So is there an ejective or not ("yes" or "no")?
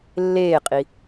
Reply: yes